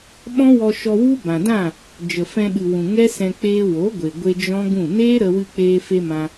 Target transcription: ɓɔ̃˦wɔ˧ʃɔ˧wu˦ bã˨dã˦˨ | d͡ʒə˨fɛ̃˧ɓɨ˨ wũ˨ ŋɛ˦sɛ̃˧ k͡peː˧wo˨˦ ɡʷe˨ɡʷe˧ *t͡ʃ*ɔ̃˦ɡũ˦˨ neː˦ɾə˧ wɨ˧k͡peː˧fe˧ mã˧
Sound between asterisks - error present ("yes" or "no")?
yes